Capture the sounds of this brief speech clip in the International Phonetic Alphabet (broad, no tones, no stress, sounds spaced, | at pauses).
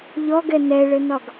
ʎ ɔ ɡ ɛ n ɛ ɭ ɘ n ɒ ɡ